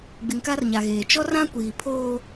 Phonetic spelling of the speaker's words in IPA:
ɡ͡bɪ˨ŋka˦rɲa˨ɣeː˨ t͡ʃɔ˦rã˦kʷiː˨pʰoː˦

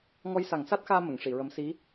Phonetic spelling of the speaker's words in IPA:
ŋɔ˧jsa˨˩˦ŋsa˦˥t̚xaː˧ mə˨˩˨ŋʂi˨˩˨ɹə˧˥m si˧˥

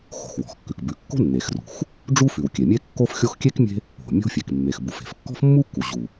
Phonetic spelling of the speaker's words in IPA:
xo̤˩xwɔ̤˩xkːʉ˩k bʉ˩kːo̤˥ nːe˩xrṳ˩x | ɖ͡ʐu˥fʉ˩w kʲe˩mʲe˥kːo˥fxʲo˥x kʲe˥k mʲe̤˥ | o̤˩ mʲo̤˥fʲe˩k mːe˩xbu˩f e̤˩fkːɔ̤˥fmːu˥kːu˩ ʑu˩

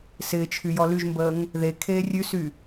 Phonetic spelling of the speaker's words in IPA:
sɪːt͡ʃʰy jɔlyʒmbəːŋ | ðe kʰeːrʲʉsy

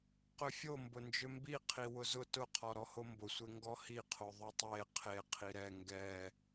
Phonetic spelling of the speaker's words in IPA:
qʏfʲo mbʊnd͡ʒʏmbi qʰiwʊzʊ tʊqʰɔ ɾɔhombʊsʷe ŋɡɔhiqʰo ðˤʊtˤe qʰe qʰiɾɛ ŋɡɛ

